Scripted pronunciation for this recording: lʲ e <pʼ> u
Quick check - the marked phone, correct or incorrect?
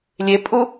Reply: correct